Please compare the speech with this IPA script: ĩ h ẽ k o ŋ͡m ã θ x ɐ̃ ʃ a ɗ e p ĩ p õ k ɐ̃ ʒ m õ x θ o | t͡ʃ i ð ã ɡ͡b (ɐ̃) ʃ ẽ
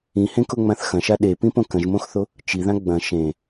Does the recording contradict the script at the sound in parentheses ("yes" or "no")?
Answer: no